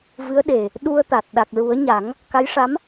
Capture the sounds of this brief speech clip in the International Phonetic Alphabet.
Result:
v ɨ˧˥ ə̯ ɗ e˨˩ | ɗ u˧ ə̯ t̪ a˨˩ t̚ ɗ a˨˩ k̚ ɹ u˨˩˦ ə̯ ɲ a˨˩˦ ŋ | k a˧˥ j ʂ a˧˥ m

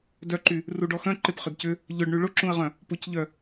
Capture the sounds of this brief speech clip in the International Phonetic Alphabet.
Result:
d œ ǃ y | r u ɖ ɔ x œ̃ ǃ ɪ p χ ʏ d c ʏ | ʎ ʊ ɖ ɳ y ɭ ʊ ǁ ũ ə̯ ʁ œ̃ | p ʊ c ʎ œ

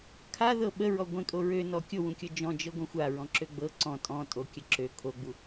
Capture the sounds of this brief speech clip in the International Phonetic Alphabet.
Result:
kʰ a ð ɤ ɓ ə ɹ ɔ ɡʷ ẽ kʼ o ɹ ø n ɔ kʲ o w ũ kʲ ɤ d͡ʒ ɔ̃ d͡ʒ ɤ ɡʷ ẽ xʷ a ɹ ɔ̃ ǁ ø ɡ͡b ɤ ǀ ɔ̃ tʼ ɔ̃ tʼ o kʲ ə ǁ ø kʰ o ɡ͡b u

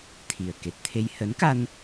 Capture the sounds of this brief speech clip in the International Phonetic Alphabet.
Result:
t̪ʰ i˨˩ ə̯ k e˨˩ t̚ t̪ʰ e˧ j h ə˨˦ n k a˧ n

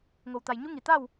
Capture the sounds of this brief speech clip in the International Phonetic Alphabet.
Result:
ŋ o˩ w t̪ a˩ j ɲ u˧˥ ŋ i˩ t̪ a˥˨ w

